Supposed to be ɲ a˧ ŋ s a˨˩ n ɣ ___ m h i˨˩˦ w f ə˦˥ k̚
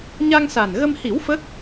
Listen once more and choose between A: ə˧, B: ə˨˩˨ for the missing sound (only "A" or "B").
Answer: A